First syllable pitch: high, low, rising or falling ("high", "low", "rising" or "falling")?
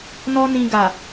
high